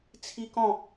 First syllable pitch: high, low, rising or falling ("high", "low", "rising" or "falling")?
high